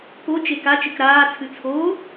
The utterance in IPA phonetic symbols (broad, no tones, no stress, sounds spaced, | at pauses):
p o t͡ʃ e k a t͡ʃ ɨ k ɾ aː t͡sʰ ɨ t͡sʰ oː